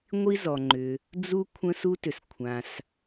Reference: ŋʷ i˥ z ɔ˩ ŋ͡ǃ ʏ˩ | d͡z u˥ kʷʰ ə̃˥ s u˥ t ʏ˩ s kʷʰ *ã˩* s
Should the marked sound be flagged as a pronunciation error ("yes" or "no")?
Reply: no